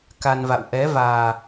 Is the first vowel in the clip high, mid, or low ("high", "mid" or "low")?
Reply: low